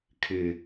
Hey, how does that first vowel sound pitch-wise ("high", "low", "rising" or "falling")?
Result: low